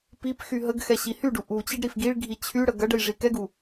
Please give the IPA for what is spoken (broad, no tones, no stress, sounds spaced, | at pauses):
p i p x y ɦ ə ɡ x ɛ ɕ i h y ɖ u ʔ u t͡ɕ i ɖ ɾ i f ɡ i ɭ ɡʱ i t͡ɕʰ y ɽ ə ɡ ɐ ɖ ə j ʐ i k ɛ ɡ u